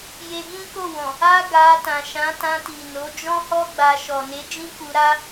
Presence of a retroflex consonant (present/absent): absent